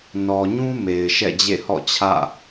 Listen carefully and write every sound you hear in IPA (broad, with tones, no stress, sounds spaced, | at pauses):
n ɔ˨ ɲ ũ˦ m e˨ ɪ̯ ʃ ɛ̰˦˨ d͡ʑ ḛ˦˨ h ɔ̰˦˨ t͡ɕʰ ä̰˦˨